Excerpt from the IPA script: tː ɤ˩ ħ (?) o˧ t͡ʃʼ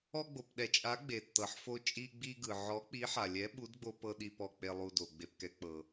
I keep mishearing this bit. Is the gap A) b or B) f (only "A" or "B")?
B